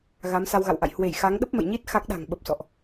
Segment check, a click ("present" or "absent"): absent